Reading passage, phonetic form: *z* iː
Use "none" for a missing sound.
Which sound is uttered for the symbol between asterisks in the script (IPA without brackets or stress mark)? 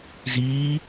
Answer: z